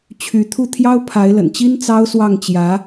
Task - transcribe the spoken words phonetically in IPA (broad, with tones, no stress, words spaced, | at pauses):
t͡ɕʰy˧˥t̪ʰu˥˩ t̪ʰjɑ˥ʊ̯pʰa˧˥ɪ̯lə̰˨˩nt͡ɕi˥n t͡sɑ˥ʊ̯swɑ˥˩ŋt͡ɕjä˧˥